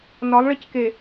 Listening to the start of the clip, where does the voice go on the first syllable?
rising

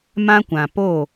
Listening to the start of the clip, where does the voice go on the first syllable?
high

